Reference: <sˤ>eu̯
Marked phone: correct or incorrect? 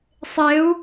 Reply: correct